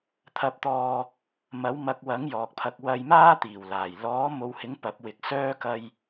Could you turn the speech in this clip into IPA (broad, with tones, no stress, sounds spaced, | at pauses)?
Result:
t̪ʰ ɐ˨ p̚ t̪ ɔː˨ | m ɐ˨˥ w m ɐ˧ k̚ w ɐ˨˥ ŋ j ɔː˨ k̚ pʰ ɐ˧ k̚ w ɐ˧ j m aː˥ t̪ iː˨˩ w l aː˨˩ j l ɔː˨˥ m o˨˧ w h ɪ˨˥ ŋ p ɐ˨˥ p̚ w ɪ˧ k̚ s œː˥ k ɐ˧ j